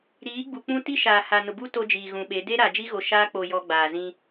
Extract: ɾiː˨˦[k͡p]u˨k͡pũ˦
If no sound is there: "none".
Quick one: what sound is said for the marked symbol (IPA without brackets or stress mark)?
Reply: ɡ͡b